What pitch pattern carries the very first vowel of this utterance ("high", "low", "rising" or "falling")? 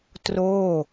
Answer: falling